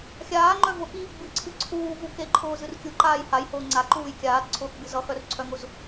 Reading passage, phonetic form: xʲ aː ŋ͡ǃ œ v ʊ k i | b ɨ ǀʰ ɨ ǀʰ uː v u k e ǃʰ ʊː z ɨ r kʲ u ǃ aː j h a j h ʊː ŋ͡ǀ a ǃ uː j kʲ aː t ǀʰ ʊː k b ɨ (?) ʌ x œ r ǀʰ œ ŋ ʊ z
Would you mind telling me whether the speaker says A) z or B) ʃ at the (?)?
A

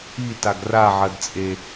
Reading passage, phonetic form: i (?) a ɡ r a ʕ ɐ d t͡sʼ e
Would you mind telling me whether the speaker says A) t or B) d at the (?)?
A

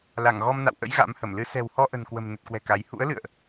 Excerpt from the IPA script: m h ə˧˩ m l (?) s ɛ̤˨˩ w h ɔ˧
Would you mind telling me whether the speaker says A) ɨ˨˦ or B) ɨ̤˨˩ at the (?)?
A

